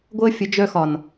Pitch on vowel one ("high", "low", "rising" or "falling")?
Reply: high